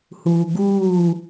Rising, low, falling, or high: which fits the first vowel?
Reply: low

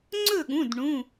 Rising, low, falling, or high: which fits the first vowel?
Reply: falling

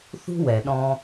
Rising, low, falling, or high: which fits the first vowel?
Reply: high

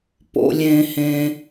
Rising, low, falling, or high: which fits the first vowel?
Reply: high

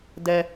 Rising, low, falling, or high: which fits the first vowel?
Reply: high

